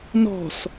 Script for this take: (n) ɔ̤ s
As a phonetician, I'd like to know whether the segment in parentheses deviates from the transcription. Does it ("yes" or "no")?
no